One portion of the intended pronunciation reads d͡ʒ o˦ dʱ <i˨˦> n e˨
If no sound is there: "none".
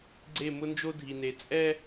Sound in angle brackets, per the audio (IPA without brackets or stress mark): i˨